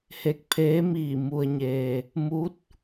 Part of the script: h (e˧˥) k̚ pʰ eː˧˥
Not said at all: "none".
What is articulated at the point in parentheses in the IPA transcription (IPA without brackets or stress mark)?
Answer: e˧˩